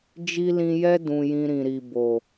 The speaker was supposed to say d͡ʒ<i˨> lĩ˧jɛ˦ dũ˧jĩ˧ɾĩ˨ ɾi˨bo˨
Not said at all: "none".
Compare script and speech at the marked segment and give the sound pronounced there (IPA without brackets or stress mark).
i˦